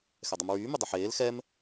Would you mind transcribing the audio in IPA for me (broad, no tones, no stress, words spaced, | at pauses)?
xɛdˤɨmɹyː mydˤɵħeːl xɛm